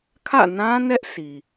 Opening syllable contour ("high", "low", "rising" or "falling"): falling